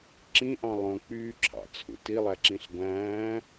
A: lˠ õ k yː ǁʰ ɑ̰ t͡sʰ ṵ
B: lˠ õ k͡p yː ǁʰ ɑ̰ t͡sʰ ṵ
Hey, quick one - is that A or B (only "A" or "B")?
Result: B